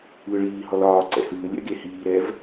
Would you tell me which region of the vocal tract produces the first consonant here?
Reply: retroflex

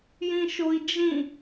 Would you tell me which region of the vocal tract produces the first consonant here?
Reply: palate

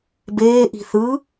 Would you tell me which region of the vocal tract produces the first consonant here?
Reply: lips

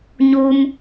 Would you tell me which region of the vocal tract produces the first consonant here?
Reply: palate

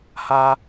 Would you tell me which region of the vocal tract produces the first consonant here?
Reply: throat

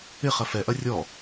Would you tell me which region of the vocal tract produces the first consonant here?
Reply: uvula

